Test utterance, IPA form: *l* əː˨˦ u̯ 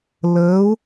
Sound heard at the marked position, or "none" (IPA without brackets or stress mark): l